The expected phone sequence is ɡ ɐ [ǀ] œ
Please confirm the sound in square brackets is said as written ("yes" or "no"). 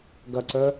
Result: yes